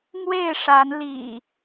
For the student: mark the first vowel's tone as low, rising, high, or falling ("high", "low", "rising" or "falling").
falling